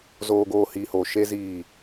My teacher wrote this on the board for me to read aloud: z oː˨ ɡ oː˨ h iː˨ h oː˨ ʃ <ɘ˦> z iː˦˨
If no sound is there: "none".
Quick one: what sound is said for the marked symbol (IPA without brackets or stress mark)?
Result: e˦